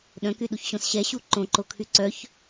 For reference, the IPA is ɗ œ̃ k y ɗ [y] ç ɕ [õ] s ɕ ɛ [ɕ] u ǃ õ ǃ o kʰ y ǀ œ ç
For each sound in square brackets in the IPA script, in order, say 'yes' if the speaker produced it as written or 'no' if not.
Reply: no, yes, yes

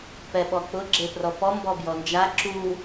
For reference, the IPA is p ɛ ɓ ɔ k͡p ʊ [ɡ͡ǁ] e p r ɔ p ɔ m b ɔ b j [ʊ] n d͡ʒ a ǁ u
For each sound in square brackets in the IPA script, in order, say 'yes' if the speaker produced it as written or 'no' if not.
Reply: yes, no

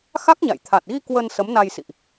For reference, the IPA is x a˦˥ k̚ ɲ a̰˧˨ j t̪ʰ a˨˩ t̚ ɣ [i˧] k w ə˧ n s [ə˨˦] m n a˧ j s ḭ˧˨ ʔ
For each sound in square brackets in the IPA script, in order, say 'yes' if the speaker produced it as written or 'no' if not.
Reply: yes, yes

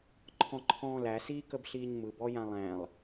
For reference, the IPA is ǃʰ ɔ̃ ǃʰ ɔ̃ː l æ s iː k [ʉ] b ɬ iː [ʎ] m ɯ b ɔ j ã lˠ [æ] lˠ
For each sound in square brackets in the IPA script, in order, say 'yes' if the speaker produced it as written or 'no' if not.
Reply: no, no, no

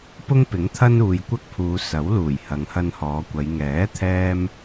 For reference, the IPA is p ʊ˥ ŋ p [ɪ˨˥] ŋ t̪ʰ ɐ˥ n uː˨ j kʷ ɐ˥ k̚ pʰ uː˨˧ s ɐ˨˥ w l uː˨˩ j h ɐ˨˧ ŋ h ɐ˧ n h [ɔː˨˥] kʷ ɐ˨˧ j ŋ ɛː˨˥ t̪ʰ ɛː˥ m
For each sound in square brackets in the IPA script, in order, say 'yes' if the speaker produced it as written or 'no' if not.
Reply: yes, no

